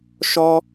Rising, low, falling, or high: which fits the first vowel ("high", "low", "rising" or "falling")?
high